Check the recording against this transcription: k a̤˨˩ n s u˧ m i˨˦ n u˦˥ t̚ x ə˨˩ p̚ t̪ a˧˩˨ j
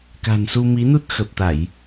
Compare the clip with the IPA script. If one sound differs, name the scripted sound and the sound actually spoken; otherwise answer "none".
none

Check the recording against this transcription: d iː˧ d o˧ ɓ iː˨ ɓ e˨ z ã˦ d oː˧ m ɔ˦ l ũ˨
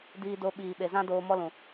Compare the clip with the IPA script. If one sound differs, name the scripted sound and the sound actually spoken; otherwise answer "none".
none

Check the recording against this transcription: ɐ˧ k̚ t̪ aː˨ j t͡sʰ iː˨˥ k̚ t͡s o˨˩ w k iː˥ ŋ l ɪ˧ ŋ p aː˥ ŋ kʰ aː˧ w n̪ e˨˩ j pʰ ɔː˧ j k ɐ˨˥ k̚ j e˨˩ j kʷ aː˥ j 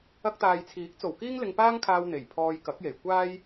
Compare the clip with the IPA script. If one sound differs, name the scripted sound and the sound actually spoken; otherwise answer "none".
none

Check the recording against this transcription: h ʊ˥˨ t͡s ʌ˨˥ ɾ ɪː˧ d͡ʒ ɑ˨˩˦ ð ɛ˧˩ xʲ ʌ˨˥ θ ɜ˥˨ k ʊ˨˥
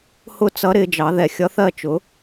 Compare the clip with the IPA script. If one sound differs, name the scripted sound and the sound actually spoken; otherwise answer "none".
k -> t͡ʃ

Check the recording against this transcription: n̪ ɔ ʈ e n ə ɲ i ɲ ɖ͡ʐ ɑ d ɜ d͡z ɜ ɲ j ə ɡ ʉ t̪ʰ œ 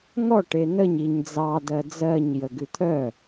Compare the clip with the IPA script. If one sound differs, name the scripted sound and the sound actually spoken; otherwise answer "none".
ɖ͡ʐ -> d͡z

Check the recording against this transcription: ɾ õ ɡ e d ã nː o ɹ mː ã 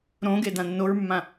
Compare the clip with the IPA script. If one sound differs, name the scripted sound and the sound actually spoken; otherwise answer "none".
none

